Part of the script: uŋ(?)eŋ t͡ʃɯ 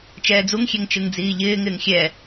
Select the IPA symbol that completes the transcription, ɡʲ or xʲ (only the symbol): xʲ